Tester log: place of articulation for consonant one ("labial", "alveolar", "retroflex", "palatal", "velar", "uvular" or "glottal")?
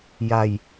palatal